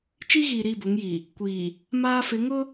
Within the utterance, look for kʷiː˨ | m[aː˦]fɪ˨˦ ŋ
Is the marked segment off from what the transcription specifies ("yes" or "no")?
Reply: no